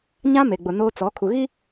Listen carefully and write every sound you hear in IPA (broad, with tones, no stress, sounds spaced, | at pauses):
ɲ ã˦ m e˨ ɡ͡b ʊ˨ n oː˦ t͡s ɔ˨˦ kʰ u˨ ɣ i˦